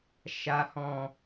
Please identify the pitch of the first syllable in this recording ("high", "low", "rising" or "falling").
low